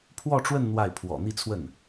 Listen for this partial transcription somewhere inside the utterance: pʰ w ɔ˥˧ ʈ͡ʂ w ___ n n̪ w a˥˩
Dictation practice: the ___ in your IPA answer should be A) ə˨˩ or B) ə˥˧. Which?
B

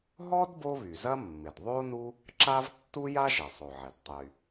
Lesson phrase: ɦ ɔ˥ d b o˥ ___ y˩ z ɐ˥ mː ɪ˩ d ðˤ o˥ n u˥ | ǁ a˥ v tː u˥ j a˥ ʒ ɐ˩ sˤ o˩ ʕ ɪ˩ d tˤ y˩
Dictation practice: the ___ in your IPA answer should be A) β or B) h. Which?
A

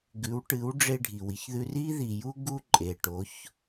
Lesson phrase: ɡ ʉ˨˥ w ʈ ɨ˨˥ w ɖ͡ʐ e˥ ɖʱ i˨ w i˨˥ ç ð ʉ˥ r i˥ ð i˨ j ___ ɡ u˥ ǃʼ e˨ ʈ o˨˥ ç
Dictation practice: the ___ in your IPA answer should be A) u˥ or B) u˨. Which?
A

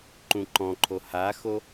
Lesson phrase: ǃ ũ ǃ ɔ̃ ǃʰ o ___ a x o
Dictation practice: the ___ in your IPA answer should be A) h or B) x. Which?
A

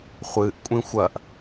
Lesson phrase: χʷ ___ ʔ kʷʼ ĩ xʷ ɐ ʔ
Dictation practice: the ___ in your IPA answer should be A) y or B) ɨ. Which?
B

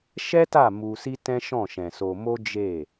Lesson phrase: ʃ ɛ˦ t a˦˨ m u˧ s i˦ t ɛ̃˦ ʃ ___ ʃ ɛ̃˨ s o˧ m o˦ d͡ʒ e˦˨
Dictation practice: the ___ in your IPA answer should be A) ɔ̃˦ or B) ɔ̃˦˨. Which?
B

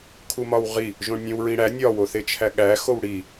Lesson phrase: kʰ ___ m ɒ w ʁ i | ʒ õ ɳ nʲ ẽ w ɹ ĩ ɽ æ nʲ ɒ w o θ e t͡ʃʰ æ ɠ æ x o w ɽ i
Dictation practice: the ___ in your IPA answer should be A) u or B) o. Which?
A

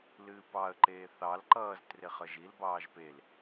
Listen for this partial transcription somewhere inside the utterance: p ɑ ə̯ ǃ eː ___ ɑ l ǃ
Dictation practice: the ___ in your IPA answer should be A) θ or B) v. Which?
A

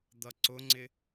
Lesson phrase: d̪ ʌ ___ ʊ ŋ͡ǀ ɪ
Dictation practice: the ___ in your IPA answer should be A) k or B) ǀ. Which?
B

